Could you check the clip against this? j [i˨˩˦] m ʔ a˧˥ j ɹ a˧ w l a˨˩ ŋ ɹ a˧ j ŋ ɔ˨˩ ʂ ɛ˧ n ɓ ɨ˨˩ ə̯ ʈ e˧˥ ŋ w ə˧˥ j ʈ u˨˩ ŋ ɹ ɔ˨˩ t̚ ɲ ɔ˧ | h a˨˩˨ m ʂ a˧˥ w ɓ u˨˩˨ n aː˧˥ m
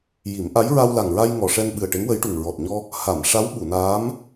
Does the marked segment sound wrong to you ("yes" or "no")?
no